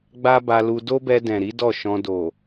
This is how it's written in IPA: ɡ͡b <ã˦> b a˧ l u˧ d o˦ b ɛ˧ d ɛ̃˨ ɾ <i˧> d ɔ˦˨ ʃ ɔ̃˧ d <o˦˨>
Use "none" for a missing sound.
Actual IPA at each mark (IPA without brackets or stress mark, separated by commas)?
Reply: a˦, i˨˦, o˨